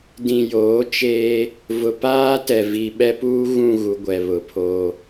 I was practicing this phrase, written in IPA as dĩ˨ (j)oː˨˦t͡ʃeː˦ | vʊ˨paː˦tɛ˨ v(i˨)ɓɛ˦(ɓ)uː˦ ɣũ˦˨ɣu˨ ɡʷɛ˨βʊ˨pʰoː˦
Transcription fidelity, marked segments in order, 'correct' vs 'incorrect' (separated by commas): correct, correct, incorrect